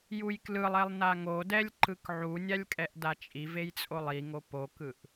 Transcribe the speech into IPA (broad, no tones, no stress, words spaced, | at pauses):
jujklɯlˠɛlˠ naŋodɛlʲ ǃɯkʕunʲalʲ kʼɛʔdat͡ʃʼivej t͡sʼolˠiŋo pokɯʔ